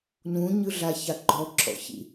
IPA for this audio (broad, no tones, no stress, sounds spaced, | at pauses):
n ũ ɲ ɯ ɮ a ç a ɡ͡ǃ ɔ ǁʰ ɔ̰ ç ḭ